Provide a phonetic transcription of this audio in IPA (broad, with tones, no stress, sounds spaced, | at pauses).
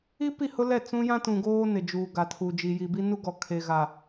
i˦ p i˦˨ h ʊ˦ l ɛ˦˨ t͡s ũ˦ j ã˦ t ũ˨ ɡ oː˦ n ɪ˨ d͡ʒ uː˨ ɡ a˨ tʰ u˨ d͡ʒ i˨ j i˨ b i˦ n u˦ ɡ ɔ˨ kʰ e˨ ɣ a˨